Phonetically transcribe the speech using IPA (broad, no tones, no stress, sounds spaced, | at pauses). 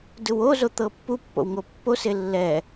d ɯ w o z o t̪ ɤ pː u pː o̰ w ŋ o pː o s e lː ɛ